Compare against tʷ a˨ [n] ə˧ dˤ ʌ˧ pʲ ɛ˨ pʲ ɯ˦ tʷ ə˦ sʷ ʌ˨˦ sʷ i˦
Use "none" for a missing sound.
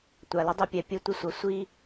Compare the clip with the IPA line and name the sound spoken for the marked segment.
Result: l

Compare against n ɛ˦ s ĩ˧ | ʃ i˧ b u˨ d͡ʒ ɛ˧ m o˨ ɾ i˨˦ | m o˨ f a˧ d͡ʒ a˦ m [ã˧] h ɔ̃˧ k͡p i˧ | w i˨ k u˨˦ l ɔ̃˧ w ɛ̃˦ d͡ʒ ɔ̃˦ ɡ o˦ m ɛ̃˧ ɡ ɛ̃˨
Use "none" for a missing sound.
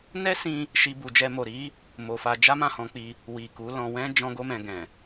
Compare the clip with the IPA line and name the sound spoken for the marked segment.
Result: ã˦˨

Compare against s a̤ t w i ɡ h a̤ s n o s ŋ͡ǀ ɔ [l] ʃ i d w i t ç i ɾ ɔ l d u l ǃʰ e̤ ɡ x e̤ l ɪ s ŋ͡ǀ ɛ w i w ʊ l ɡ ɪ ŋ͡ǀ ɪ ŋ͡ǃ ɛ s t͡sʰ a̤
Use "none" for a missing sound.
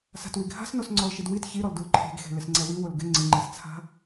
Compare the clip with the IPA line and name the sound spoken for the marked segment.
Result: l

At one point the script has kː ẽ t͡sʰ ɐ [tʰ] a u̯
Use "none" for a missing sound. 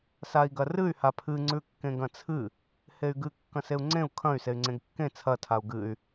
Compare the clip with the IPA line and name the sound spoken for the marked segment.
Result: tʰ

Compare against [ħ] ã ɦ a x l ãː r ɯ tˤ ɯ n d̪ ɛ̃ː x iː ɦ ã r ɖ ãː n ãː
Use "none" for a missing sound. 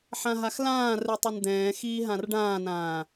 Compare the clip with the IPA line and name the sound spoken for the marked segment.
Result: ħ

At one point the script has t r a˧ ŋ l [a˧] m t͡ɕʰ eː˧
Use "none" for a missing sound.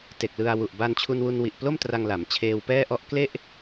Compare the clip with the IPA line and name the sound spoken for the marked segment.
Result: a˩˦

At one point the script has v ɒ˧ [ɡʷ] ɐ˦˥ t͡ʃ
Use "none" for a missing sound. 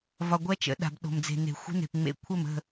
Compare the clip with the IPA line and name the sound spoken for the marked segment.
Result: ɡʷ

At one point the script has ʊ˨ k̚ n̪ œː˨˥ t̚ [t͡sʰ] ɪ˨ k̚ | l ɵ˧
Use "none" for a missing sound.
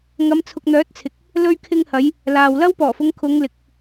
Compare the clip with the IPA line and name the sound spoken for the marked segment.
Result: t͡sʰ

